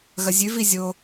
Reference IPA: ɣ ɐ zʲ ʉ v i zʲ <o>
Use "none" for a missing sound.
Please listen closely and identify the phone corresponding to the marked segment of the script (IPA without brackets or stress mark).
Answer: o